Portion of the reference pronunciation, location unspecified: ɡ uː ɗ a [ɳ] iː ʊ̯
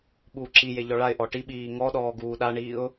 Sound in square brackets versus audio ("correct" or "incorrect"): correct